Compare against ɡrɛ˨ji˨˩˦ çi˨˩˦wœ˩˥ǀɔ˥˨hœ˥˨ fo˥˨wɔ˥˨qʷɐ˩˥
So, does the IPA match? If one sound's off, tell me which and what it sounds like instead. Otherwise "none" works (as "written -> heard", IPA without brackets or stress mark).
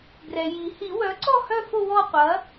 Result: ç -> h